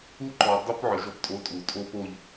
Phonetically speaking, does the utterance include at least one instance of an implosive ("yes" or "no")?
no